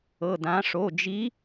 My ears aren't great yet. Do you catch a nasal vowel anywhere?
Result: yes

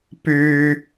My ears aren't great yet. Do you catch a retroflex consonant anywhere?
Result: no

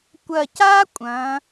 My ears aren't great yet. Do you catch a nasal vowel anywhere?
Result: yes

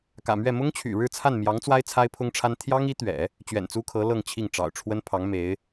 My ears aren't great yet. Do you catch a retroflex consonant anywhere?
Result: yes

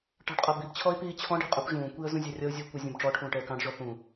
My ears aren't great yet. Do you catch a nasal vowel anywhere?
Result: yes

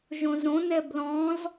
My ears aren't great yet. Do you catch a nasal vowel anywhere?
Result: yes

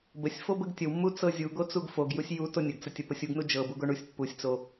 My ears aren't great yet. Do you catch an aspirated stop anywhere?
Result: no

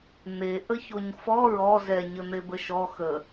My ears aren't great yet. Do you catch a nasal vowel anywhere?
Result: no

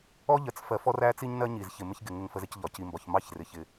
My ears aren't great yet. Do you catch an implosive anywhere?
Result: no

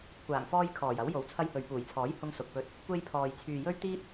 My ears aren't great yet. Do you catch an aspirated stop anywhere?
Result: yes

